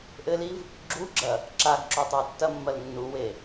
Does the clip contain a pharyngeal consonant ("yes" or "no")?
no